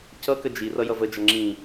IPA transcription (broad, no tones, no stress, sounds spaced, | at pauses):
c ʌ k ə d͡ʒ i r ʌ j ʌ v ə d͡ʒ ʌ ŋ͡ǁ ĩ